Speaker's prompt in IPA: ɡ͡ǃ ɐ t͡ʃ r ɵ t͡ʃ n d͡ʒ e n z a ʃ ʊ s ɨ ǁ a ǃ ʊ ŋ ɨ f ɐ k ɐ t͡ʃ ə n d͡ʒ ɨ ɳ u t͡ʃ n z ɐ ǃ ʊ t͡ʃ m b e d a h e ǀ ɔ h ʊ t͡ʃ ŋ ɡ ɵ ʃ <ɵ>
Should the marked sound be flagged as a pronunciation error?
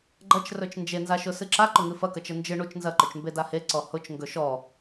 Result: yes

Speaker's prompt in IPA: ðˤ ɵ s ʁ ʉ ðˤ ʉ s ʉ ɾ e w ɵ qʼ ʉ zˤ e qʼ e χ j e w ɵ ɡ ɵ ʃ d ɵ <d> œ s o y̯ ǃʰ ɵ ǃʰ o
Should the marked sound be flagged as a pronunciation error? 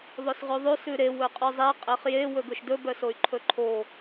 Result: yes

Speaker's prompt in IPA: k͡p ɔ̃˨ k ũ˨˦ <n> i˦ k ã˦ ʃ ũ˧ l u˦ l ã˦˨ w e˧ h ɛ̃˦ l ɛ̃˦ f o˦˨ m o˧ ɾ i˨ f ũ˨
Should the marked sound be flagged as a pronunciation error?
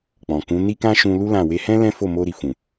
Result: no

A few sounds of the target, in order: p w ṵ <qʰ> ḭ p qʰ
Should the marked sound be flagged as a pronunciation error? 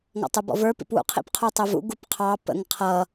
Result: no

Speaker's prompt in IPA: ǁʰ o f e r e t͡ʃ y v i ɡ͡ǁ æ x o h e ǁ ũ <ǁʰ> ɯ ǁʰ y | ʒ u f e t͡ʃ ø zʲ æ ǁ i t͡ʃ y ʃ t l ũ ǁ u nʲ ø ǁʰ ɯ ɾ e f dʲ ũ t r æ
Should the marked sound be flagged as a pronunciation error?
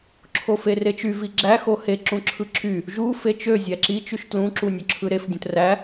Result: no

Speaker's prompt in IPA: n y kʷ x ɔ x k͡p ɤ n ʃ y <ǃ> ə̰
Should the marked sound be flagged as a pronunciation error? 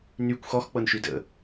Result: yes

